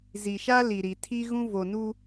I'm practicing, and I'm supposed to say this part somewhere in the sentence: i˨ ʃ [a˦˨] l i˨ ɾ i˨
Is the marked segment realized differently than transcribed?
yes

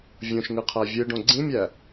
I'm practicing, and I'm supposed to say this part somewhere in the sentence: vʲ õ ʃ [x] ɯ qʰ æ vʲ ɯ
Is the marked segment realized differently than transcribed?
yes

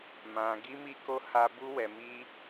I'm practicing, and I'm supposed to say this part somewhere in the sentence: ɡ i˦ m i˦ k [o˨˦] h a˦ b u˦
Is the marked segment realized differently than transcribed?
yes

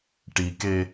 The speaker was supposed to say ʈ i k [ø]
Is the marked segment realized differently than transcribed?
yes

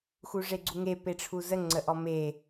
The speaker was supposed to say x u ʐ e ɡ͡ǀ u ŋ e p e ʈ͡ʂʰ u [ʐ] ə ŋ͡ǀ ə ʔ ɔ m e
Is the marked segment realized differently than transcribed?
yes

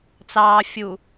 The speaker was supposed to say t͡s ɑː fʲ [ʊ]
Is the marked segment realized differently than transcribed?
yes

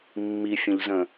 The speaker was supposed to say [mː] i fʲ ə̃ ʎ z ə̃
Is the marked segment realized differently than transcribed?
no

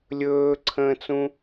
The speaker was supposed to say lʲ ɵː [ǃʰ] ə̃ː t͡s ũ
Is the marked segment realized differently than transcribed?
yes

